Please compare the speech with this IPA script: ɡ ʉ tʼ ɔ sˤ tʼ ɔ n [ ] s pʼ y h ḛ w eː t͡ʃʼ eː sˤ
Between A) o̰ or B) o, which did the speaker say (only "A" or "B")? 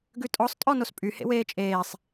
B